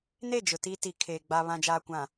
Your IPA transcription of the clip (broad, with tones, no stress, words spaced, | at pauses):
ne˦˨d͡ʒʊ˨ ti˦ti˨ kʰeː˨ ɡ͡baː˨βã˨d͡ʒaː˨kʷã˨